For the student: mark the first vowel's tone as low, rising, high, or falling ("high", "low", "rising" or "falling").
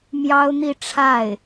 high